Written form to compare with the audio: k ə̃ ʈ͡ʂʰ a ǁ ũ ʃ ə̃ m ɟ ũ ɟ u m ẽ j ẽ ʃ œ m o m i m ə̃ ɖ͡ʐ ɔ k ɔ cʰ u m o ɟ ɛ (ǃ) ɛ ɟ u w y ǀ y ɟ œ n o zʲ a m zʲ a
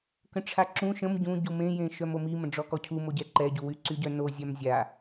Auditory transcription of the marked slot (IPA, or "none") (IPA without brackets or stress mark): ǃ